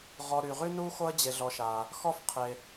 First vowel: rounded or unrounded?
rounded